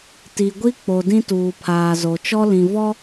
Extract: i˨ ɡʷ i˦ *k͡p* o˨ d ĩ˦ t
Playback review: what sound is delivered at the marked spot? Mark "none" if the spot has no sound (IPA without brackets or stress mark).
k͡p